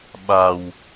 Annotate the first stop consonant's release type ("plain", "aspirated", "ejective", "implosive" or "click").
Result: implosive